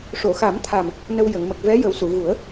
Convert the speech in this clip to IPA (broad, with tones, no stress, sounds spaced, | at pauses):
ʂ o˨˩˨ x a˨˩˦ m t̪ʰ a˨˩ m | n ə˧ w j ə˨˩˨ ŋ m ə˨˩ k̚ v ɛ˧˥ j ə˨˩˦ w s u˨˩˨ ɣ u˨˩˦ ə̯